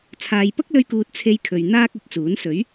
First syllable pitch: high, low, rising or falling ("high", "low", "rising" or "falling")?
low